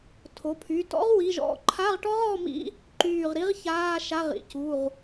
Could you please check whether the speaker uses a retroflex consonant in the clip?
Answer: yes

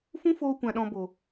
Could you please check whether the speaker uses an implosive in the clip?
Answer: yes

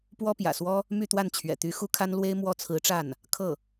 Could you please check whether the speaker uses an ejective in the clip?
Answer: no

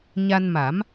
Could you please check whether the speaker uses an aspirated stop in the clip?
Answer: no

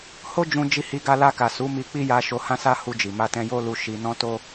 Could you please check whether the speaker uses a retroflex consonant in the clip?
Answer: no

